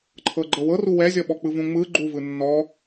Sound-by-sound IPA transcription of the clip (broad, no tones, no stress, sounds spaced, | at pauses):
ǃʰ ɤ ɡ͡ǃ ɤ w ɤ r u w ɛ zʲ ɔ ɓ ɔ k͡p ɯ v ũ ŋ͡m ɯ ɡ͡ǃ u v ɯ nː ɔ